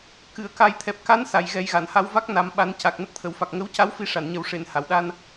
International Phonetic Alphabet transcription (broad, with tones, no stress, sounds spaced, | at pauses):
k ɨ˨˩˨ ə̯ k a˨˩ j t̪ʰ ɛ˨˩ p̚ k a˧˥ n s a˨˩˨ j ɣ ɛ˨˩˦ j ɣ a˨˩˨ n h a˧˥ w v a˦˥ k̚ n a˨˩˦ m ɓ a˨˩˦ n c a˨˩ k̚ n ə˦˥ k̚ t̪ʰ ə˨˩˨ w f a˨˩ k̚ ŋ ə˧˥ w c a˧˥ w f i˧ ʂ a˨˩˨ n ɲ ə˨˩˦ w ʂ e˨˩˨ n h a˨˩˨ w ɗ a˧ n